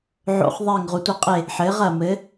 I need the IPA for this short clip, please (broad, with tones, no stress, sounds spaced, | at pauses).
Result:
ʕ o̰˦ χ ðˤ eː˦˨ ŋ ʁ u˨ tʷ e˦ qʼ e˦˨ | ħ ɘː˨˥ ʁ ɐ˦˨ m ɘ˨˥